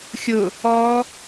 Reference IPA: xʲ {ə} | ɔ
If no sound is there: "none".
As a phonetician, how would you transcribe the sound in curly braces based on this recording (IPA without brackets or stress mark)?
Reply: ʊ